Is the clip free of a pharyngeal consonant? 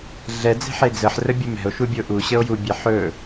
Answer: no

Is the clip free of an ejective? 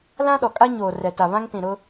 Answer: no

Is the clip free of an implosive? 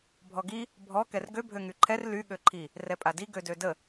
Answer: no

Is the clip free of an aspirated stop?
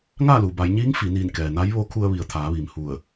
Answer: no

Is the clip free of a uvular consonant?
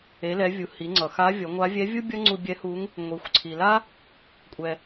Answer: yes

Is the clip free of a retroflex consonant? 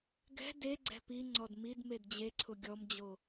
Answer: yes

